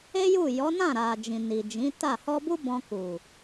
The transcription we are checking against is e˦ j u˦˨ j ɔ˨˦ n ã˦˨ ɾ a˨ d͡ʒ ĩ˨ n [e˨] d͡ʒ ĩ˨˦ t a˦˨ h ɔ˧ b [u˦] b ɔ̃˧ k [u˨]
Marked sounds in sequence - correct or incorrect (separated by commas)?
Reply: incorrect, correct, correct